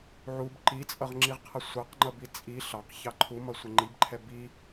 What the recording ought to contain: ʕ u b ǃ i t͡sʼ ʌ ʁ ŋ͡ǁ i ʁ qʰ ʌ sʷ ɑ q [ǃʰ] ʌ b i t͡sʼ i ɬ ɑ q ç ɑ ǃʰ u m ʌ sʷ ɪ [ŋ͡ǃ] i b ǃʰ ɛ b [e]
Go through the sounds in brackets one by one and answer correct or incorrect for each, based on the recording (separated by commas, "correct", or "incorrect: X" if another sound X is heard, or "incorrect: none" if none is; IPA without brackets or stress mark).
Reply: incorrect: ŋ͡ǃ, correct, incorrect: i